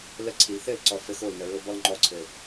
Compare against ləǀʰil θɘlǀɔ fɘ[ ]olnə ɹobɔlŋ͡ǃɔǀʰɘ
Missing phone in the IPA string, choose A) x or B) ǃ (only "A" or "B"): A